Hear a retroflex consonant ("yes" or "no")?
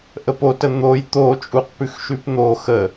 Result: no